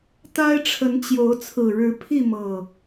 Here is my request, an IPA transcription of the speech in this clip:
t̪ a˦ ɪ̯ ʈ͡ʂʰ ə˨˦ n t͡ɕ j o˨˦ ʊ̯ t͡sʰ ɹ̩˨˩ ɻ ɻ̩˨˦ pʰ i˥˨ m ɤ˨˩

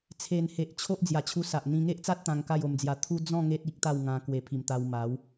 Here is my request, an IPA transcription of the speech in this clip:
t͡sʰ e˨˩ n h e˨ ʔ t͡ɕʰ o˦ ʔ d͡z j a˨˩ t͡ɕʰ u˧ s a˨ ʔ n̪ ĩ˧ ŋ e˦ ʔ t͡s a˦ t̚ t̪ ã˧ ŋ k a˥˧ j o˧ m d͡z j a˧ t̪ʰ u˦ d͡z ɔ̃˥˧ ŋ e˦ t̚ i˦ k̚ t̪ a˥˧ w ŋ ã˧ k w e˨˩ pʰ i˨˩ m t̪ a˧ w m a˨˦ w

